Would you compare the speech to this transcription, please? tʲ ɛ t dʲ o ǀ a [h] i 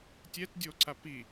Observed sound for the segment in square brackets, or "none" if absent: p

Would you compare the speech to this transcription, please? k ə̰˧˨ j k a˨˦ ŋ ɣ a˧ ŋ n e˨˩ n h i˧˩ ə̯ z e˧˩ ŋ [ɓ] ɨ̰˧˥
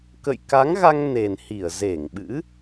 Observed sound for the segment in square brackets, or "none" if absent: ɓ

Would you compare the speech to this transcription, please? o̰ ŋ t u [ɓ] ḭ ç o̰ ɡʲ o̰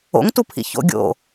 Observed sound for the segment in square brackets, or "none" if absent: pʰ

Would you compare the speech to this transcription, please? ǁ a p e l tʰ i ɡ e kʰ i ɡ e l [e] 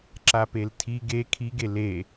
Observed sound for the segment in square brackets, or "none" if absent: e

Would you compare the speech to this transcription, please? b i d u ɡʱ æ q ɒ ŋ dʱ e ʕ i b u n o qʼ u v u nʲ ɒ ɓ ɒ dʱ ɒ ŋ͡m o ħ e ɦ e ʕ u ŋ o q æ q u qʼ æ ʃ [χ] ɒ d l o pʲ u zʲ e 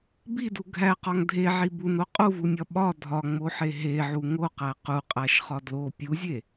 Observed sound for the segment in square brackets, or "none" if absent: χ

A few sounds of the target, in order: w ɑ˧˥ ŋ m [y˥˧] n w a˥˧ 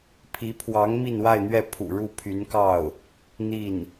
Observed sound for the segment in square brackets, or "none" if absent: i˥˧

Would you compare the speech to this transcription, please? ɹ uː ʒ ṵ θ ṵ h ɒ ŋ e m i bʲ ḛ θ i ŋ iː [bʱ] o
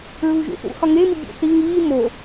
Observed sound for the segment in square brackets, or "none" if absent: m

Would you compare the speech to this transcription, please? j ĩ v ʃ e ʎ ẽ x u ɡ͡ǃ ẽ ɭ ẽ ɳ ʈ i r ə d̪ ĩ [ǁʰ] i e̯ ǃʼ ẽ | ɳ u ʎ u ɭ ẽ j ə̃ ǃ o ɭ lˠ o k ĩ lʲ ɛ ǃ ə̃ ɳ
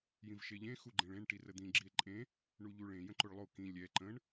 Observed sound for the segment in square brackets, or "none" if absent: ɡ͡ǁ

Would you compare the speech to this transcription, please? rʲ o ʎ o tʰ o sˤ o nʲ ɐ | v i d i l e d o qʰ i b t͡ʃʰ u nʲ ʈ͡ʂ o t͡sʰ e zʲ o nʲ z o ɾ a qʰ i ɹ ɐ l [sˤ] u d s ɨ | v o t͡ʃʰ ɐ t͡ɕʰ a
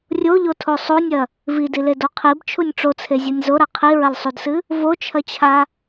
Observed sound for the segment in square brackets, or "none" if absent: sˤ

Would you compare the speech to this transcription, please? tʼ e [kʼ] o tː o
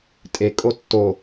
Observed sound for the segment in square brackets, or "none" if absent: kʼ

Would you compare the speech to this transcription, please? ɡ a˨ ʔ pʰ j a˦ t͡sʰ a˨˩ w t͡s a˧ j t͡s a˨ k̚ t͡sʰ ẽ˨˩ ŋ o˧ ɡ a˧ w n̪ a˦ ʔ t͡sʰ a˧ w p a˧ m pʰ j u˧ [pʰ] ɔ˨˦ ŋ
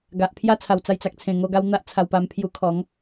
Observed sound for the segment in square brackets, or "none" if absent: kʰ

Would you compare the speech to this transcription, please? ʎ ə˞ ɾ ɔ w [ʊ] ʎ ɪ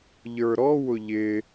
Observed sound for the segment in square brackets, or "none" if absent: ʊ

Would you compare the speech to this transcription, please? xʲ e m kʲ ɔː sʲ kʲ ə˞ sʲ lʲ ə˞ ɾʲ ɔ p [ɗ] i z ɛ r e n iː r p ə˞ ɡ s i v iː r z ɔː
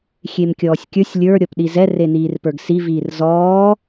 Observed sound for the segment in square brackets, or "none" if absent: ɗ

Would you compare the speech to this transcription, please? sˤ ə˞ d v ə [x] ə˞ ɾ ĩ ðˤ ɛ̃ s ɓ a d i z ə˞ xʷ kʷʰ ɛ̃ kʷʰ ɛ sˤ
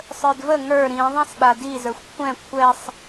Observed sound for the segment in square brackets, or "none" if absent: ŋ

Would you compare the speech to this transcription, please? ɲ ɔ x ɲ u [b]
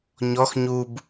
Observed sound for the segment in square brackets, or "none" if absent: b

